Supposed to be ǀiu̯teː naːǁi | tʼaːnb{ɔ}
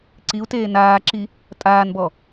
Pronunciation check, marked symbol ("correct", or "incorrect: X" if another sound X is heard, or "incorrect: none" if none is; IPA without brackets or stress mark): correct